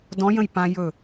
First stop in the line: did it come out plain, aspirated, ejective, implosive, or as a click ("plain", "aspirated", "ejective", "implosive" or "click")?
plain